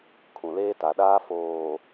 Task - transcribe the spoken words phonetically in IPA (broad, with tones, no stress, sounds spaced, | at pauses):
kʰ ũ˨ l eː˦ t a˨ ɗ aː˦ f oː˨